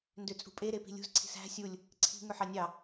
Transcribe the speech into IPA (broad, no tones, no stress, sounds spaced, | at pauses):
n d ø t͡sʼ ṳ pʼ e ɾ e p i̤ lʲ ṳ z ǀʰ i̤ s æ̤ sʲ u lʲ | ǀʰ i̤ ŋ ø ħ ɑ nʲ ɑ